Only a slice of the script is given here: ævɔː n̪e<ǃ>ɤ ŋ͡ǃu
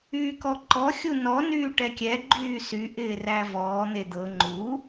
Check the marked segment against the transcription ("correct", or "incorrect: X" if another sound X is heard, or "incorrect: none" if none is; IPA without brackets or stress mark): incorrect: d̪